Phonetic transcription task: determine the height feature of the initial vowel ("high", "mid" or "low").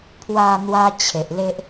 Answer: low